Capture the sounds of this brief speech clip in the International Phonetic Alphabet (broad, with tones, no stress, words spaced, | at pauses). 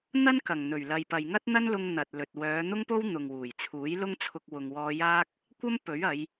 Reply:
n̪ɐ˥nkɐ˨˩ŋ n̪ɵ˨˩ɥlɐ˨jpɐ˨j ŋɐ˥t̚n̪ɐ˥nlʊ˧ŋ n̪ɐ˨t̚lɵ˨t̚ wœː˨˧n̪ʊ˥ŋpo˥w n̪ʊ˨ŋwuː˨˩jt͡sʰuː˨˥j lʊ˥ŋ t͡sʰʊ˧k̚ wʊ˨ŋwɔː˧jaː˥k̚ | kʷɐ˥m pɵ˨˥ɥɐ˨˧j